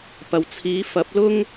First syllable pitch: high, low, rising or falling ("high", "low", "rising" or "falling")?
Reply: low